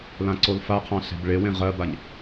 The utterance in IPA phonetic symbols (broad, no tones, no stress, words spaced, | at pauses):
lãǀolfaqʰɑ̃ ɬe̤bɭewẽ ʁɜbaɲ